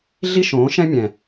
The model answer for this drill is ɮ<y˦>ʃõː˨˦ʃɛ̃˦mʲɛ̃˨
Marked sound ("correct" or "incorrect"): incorrect